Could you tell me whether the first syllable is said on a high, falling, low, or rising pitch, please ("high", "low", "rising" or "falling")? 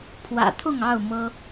low